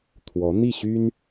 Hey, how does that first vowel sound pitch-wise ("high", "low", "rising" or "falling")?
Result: rising